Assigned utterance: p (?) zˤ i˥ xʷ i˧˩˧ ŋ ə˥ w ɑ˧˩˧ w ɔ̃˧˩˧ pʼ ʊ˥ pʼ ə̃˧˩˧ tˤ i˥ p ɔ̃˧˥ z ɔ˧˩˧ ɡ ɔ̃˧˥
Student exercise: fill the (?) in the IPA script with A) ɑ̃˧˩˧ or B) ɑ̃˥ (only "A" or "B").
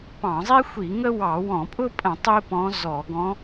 A